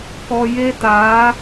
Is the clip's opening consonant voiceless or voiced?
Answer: voiceless